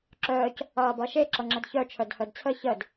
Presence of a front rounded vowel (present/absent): present